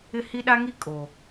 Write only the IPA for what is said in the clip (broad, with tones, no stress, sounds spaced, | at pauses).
ɪ˦˨ h i˦ ɗ a˦ ŋ i˦ kʼ o˨